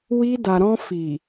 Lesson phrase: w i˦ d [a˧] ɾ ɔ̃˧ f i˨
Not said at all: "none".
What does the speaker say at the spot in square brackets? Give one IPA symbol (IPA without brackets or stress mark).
a˧